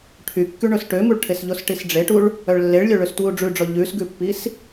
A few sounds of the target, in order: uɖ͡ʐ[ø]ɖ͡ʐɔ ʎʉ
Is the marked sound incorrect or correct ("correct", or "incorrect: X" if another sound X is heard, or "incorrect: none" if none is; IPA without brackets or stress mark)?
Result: incorrect: ʉ